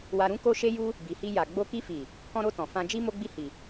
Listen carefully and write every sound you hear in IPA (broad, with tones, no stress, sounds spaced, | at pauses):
w a˧ ɾ ũ˦ k o˧ ʃ e˧ j u˧ | b i˨ h i˧ j a˨ ɡ͡b o˧ k i˧ f i˨ | k ɔ̃˧ ɾ o˧ t ɔ̃˨ f ã˧ d͡ʒ i˦ m o˦ ɡ͡b i˦˨ h i˨